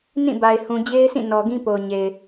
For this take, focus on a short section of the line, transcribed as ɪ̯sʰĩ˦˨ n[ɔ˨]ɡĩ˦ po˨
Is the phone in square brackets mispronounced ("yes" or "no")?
no